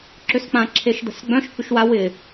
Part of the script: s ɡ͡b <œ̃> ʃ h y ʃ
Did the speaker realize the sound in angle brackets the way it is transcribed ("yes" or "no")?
yes